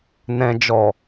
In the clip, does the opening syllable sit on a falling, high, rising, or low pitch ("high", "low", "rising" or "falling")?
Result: low